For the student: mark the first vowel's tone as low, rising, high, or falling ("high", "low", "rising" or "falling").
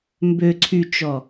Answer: low